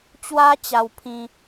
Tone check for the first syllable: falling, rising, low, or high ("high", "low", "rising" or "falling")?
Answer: high